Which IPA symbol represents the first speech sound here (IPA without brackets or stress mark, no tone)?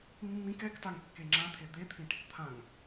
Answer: mː